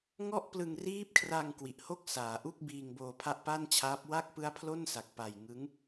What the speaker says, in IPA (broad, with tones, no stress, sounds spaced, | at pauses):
ŋ ɔ˥˩ ʔ p l ɯ˧ ŋ r iː˦˥ p̚ kʰ r a˧ ŋ k w i˨˩ ʔ h o˥˩ k̚ s aː˩˦ ʔ u˥˩ k̚ b iː˧ ŋ b oː˧ pʰ a˥˩ ʔ p a˥˩ n t͡ɕʰ aː˦˥ p̚ w a˥˩ k̚ p ɯ˦˥ a̯ pʰ l o˥˩ n s a˨˩ k̚ p a˨˩ j ŋ ɯ˦˥ ŋ